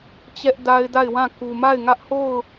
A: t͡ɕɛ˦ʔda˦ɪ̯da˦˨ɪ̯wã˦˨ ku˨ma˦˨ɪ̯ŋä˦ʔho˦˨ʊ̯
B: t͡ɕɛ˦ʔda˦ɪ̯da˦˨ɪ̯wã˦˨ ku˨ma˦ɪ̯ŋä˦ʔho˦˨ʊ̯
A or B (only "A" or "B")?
A